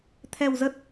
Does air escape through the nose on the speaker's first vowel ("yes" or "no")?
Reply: no